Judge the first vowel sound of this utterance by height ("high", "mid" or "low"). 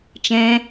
mid